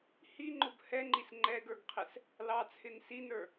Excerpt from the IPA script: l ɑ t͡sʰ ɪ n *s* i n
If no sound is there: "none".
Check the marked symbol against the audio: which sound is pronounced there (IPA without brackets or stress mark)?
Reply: s